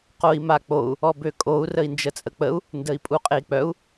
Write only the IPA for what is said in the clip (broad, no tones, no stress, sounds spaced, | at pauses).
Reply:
q o i̯ m a k͡p o u̯ | ɔ b ø kʼ o u̯ r ə i̯ n d͡ʒ ə t͡sʼ ə k͡p ə u̯ | n d ə i̯ pʼ u qʼ e i̯ k͡p œ u̯